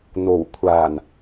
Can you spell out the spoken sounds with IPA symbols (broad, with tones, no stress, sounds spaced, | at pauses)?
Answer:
n̪ o˨˩ w kʷʰ aː˨˩ n